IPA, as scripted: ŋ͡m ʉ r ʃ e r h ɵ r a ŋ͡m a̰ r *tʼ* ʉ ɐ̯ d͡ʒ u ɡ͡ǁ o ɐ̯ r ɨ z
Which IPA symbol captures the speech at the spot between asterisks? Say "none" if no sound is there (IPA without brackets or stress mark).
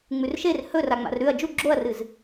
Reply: ɾ